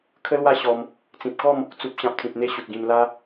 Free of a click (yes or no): yes